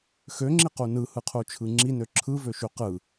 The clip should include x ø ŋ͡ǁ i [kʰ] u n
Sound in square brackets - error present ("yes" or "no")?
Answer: yes